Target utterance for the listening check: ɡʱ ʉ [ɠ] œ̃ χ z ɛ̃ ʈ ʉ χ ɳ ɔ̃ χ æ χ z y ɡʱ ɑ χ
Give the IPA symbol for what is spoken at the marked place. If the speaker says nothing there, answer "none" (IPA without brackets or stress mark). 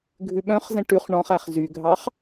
ɓ